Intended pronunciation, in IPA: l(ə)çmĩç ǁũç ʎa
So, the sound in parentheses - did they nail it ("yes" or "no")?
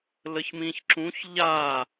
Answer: yes